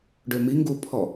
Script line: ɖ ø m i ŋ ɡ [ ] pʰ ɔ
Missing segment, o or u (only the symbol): u